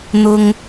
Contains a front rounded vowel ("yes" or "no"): no